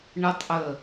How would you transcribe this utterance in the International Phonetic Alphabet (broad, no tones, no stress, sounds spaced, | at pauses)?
ɳ ə tˤ ʔ ə